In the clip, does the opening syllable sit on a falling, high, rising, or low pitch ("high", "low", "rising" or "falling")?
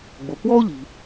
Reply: low